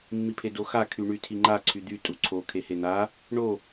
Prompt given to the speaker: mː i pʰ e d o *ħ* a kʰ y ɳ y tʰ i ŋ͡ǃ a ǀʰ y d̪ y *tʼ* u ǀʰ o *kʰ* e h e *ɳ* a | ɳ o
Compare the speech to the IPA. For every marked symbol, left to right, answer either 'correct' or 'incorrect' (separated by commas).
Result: incorrect, correct, correct, incorrect